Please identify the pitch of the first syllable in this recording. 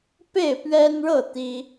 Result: falling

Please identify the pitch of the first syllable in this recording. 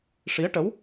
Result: rising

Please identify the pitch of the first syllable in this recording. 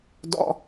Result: high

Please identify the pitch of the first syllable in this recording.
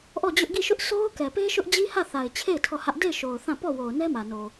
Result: falling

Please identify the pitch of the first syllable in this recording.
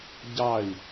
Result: falling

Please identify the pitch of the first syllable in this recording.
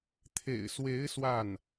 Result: low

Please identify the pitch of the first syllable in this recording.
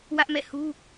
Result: high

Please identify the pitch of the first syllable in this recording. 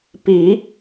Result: rising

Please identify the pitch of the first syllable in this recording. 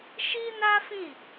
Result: high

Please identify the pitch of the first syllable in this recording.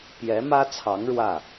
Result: rising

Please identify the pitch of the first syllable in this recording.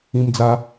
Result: high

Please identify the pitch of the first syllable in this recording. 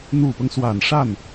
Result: low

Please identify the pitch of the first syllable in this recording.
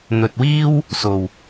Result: low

